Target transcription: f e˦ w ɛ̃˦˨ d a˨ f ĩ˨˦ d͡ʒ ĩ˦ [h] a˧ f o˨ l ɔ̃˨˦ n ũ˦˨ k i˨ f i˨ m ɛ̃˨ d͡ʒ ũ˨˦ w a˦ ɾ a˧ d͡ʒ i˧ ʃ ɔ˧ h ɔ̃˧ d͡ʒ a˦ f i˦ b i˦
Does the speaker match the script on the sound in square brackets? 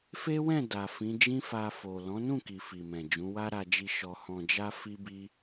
no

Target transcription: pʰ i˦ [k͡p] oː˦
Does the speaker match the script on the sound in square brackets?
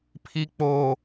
yes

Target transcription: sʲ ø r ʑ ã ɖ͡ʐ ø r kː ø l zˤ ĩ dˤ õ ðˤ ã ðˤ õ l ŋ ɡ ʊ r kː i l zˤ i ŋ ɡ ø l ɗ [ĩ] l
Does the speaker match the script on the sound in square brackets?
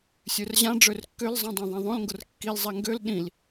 yes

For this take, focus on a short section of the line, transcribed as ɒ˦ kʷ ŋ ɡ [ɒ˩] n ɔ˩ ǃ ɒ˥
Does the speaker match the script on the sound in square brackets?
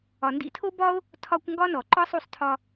no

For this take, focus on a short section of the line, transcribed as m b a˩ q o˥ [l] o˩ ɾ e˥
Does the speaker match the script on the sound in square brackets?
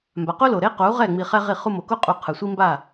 yes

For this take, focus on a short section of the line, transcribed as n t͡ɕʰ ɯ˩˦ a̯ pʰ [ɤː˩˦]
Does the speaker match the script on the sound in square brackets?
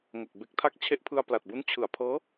no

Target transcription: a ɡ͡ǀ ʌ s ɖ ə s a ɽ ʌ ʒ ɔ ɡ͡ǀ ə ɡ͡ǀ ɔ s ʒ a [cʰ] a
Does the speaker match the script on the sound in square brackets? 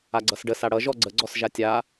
no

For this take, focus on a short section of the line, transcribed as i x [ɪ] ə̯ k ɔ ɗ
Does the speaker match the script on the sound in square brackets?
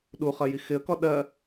yes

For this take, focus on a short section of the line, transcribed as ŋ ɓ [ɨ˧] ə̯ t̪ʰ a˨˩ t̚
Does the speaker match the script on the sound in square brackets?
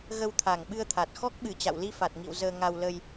yes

